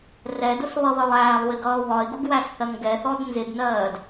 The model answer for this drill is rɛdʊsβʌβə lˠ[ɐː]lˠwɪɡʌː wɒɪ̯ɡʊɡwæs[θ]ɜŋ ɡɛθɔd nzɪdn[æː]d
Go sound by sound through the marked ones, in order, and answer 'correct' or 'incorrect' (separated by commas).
incorrect, correct, incorrect